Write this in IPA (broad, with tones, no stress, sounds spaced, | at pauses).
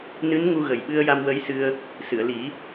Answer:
n ɨ˧˥ n ŋ u˧ ɣ ə˨˩ j ɓ ɨ˧ ə̯ j a˧ m w ə˧˥ j s ɨ˧ ə̯ | s ɨ˨˩˨ ə̯ l i˨˩˦